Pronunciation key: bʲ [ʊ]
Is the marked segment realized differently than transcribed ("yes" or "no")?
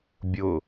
no